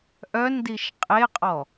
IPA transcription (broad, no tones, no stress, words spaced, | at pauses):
ʔœndiʃ qʼeqʼɔ